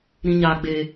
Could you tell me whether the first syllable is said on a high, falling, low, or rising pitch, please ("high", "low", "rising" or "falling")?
high